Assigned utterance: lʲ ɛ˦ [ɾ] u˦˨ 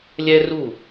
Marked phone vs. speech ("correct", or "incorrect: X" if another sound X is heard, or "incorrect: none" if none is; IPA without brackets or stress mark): incorrect: r